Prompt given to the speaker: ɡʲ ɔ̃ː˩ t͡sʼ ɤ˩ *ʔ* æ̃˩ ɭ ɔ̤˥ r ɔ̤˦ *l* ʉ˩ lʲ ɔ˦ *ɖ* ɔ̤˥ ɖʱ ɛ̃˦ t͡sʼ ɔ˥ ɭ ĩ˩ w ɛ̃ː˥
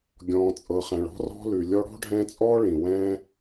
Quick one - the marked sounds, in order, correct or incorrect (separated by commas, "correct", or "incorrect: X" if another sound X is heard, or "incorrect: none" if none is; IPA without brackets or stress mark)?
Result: incorrect: χ, correct, incorrect: ɽ